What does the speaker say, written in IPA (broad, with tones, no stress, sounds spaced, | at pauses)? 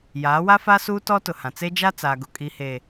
j aː˨˦ w a˦ f a˦ s uː˦ t ɔ˦ t ʊ˨ h ã˨ t͡s e˦ d͡ʒ a˦ t͡s aː˨ ɡ ʊ˨ kʼ i˨ h eː˨